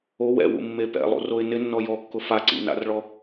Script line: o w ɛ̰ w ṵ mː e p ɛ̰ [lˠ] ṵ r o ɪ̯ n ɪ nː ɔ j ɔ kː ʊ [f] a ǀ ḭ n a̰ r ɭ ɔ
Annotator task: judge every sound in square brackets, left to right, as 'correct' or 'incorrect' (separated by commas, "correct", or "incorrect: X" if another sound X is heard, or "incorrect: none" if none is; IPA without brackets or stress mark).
correct, correct